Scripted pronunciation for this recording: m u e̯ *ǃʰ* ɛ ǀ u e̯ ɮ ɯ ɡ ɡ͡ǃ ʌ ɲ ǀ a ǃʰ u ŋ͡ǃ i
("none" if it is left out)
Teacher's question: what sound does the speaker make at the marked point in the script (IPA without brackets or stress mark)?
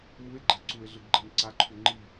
ɡ͡ǃ